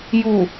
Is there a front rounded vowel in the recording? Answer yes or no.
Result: no